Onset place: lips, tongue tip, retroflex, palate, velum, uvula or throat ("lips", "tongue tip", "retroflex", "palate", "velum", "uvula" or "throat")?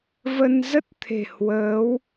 lips